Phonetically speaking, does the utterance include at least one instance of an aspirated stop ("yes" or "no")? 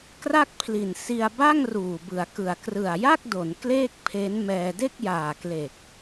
yes